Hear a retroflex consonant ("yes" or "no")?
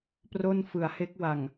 no